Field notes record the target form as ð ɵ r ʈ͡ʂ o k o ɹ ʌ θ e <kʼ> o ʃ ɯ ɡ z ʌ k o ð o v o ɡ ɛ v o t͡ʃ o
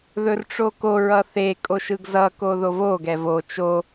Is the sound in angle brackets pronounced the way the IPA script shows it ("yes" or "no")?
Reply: yes